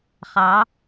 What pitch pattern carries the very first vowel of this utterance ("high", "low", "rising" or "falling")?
rising